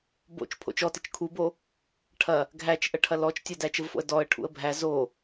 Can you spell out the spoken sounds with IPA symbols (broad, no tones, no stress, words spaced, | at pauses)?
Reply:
bo̰t͡ʃ pʰo̰t͡ʃɔtɘt͡ʃ kʰubo | ʈʰɐ | ɡʱæt͡ʃʔə ʈʰɐlɔt͡ʃ tʲɐdæt͡ʃəvfo̰ə̯ dɔə̯ ʈʰṵə̯bʱæ zo